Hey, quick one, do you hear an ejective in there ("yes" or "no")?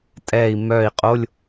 yes